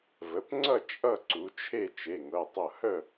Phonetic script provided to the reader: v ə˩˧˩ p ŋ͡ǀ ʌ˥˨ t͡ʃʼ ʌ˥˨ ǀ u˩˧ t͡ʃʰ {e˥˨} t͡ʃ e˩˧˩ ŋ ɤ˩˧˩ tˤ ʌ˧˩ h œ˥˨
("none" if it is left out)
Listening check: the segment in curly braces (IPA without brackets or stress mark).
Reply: e˥˨